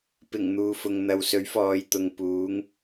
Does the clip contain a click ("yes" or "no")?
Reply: no